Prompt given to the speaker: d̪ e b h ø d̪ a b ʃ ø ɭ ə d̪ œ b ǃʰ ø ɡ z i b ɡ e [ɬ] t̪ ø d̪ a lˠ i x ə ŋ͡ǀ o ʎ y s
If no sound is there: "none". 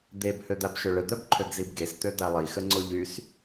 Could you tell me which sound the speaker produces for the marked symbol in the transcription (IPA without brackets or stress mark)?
s